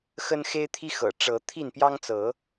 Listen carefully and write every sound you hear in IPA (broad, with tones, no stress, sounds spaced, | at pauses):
x ə˦ n x e˦ ɪ̯ t̪ʰ i˦ x ɤ̰˨˩ ʈ͡ʂ ɤ˨˦ t̪ʰ i˥˨ n p j ɑ˦ ŋ t͡s ɤ˨˦